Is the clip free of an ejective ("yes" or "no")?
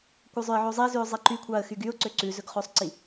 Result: yes